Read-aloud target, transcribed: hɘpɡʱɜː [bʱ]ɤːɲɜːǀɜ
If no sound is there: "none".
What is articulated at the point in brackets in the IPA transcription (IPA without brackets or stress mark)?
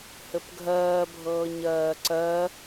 bʱ